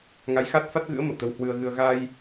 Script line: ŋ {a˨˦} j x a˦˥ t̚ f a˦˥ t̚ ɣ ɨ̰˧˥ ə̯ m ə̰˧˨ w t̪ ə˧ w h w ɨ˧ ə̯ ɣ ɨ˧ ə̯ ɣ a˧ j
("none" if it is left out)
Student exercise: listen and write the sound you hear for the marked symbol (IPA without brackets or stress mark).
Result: a˨˦